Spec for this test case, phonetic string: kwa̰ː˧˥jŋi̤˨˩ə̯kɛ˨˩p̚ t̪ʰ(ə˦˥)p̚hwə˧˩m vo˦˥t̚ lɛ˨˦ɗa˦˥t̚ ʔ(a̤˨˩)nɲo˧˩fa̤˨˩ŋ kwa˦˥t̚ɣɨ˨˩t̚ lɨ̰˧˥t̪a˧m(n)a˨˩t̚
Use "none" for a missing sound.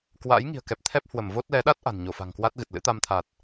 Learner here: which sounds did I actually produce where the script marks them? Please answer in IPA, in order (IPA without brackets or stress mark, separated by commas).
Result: ɛ˦˥, a̤˨˩, t̪ʰ